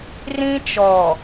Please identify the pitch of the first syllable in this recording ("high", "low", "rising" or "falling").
high